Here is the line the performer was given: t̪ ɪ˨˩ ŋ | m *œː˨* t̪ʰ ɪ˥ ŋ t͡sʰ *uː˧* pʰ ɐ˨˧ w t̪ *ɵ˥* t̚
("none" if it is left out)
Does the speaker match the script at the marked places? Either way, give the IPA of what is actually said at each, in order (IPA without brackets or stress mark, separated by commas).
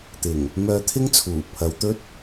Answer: œː˧, uː˨˩, ɵ˥